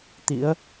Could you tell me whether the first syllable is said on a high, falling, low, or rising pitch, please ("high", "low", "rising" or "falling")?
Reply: rising